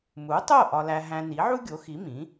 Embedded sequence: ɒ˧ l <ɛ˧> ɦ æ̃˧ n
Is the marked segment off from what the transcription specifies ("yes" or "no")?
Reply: yes